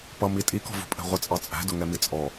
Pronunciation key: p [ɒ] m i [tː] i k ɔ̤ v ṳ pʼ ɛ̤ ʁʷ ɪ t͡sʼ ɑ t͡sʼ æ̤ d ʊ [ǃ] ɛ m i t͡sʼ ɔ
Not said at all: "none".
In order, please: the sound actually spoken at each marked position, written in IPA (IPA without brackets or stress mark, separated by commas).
ʌ, tʼ, ŋ